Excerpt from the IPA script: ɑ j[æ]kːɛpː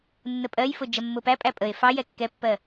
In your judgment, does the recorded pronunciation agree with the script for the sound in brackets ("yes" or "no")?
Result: no